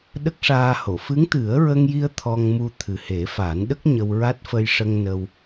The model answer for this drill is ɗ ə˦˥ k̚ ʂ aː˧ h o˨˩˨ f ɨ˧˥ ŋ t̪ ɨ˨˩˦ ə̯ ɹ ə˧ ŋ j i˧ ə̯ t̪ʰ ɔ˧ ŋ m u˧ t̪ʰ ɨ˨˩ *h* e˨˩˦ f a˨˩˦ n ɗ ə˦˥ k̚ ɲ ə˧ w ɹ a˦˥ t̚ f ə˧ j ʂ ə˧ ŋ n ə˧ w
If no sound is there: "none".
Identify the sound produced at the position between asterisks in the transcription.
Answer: h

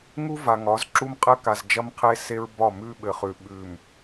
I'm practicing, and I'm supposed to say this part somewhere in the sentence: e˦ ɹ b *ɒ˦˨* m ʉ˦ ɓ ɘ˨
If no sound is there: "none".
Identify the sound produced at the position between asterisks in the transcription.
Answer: ɒ˦˨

